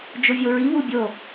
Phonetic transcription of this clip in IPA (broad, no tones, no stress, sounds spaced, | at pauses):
d͡ʒ o vʲ o ɹ i β u bʲ o